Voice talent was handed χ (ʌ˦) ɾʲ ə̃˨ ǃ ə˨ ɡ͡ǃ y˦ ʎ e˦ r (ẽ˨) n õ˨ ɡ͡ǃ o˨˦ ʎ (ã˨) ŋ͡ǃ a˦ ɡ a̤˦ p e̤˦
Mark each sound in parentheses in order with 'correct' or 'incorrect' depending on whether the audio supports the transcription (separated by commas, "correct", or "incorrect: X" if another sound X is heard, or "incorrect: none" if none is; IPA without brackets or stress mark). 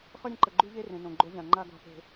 correct, correct, correct